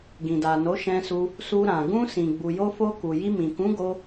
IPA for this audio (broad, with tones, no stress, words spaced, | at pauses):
ɡĩ˨da˨ no˨˦ʃɛ̃˧su˧ | su˧ɾã˨ ɡũ˧sĩ˨ ɡ͡bu˨jo˧fo˧ ku˨ji˧mĩ˨ kũ˨˦ɡo˧